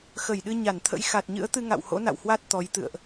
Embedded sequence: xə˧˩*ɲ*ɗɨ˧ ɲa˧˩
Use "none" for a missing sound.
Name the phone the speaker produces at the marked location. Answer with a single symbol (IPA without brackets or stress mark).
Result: j